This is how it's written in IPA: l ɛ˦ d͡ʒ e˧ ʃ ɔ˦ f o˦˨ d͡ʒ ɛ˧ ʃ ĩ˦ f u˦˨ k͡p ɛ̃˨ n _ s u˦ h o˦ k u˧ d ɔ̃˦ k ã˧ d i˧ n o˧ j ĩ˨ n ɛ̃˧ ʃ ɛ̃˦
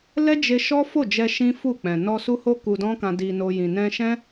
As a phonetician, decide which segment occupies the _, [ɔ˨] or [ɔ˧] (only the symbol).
ɔ˧